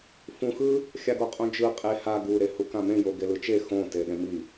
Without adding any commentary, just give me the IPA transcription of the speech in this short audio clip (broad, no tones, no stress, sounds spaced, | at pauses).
f ũ x ɯ | xʲ a ɡ o qʼ õ d͡ʒ ɯ qʼ e h a ɡ u ɾ e h u k ã m ẽ j o ɡ e l ɯ t͡ʃ e x õ t e ɗ ẽ m i